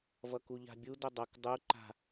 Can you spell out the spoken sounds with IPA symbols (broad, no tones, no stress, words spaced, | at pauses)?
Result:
vʌkuʎa̤bʲu dʊdˤʌk dˤu ǃa̤